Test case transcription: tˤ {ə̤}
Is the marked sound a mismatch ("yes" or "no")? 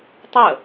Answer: yes